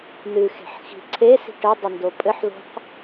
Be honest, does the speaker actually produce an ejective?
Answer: yes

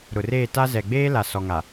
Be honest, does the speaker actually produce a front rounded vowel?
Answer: no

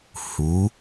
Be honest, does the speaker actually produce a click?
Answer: no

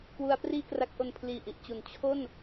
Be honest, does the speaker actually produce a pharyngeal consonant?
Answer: no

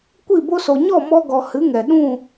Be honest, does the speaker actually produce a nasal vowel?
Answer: yes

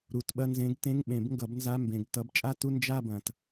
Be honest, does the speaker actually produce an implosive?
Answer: yes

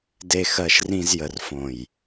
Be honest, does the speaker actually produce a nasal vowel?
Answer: yes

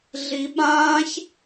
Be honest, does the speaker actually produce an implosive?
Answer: yes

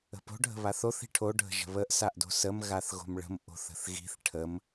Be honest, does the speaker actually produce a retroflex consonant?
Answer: yes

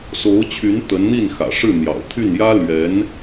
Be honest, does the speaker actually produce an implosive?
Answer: no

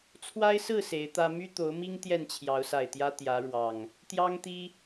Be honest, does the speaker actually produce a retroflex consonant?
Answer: yes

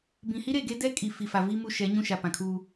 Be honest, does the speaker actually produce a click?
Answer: no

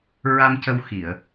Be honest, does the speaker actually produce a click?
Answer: no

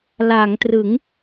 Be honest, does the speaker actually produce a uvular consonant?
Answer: no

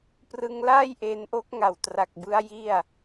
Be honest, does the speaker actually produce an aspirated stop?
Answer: no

